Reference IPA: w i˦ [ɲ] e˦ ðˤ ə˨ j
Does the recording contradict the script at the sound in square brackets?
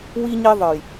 no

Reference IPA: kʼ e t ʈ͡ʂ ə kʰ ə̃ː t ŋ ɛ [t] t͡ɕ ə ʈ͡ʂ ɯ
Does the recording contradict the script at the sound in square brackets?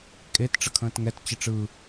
no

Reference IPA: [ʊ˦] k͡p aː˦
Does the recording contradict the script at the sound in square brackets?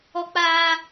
yes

